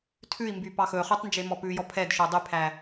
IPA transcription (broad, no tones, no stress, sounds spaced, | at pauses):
tʰ ʉ i̯ m b y p ɑ x ɵ χ y tˤ n d͡ʒ e m ɔ p ʉ j ɔ pʰ ɛ d ʃ o dˤ y pʰ æ